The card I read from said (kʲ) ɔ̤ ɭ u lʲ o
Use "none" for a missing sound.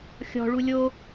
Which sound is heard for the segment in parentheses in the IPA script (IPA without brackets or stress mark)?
xʲ